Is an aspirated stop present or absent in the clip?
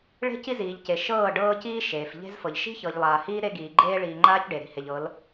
absent